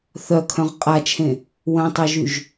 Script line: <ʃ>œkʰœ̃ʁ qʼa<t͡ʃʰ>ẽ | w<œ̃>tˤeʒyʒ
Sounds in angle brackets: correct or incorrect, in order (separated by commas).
incorrect, correct, correct